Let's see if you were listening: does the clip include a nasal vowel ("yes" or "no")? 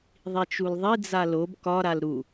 no